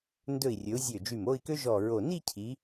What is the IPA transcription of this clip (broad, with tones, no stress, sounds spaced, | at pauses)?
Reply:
n d ɵ˧˩ i̯ rʲ ɵ˩˧ u̯ zʲ ø˧˩ d͡ʒ y˧˩ m o˥˧ i̯ k ø˥ ʒ ɔ˧˩ ɹ o˧˩ n i˥˧ cʰ i˩˧